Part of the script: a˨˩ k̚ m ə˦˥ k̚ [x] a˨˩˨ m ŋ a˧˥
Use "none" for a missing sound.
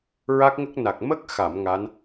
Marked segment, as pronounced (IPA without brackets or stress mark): x